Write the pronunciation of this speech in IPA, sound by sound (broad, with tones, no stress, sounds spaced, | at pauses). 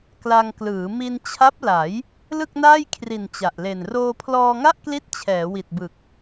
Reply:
k l a˧ ŋ k l ɯː˩˦ m i˧ n t͡ɕʰ a˦˥ p̚ l a˩˦ j | l ɯ˥˩ k̚ n aː˥˩ j kʰ r i˨˩ n t͡ɕ a˨˩ ʔ l e˨˩ n r oː˧ pʰ l ɔː˧ ŋ a˥˩ ʔ k l i˦˥ t̚ t͡ɕʰ ɛː˩˦ w i˨˩ t̚ b ɯ˨˩ k̚